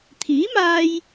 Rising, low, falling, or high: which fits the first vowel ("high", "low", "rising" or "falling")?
rising